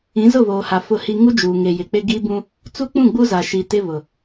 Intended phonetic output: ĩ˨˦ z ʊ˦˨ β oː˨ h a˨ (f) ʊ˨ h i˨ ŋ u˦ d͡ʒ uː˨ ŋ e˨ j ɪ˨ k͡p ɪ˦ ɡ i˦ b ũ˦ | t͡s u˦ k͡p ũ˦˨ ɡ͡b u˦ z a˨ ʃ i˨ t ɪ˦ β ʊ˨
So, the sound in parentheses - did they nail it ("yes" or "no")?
yes